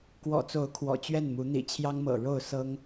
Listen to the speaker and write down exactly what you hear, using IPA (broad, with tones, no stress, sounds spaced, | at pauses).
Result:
k w ɔ̰˨˩ t͡s o˨˦ ʊ̯ kʰ w ɔ̰˨˩ t͡ɕ ɥ ɛ˥˨ n m u˨˦ n̪ ḭ˨˩ t͡ɕʰ j ɑ˦ ŋ m ɤ̰˨˩ ɻ o˥˨ ʊ̯ s ɤ˦ ŋ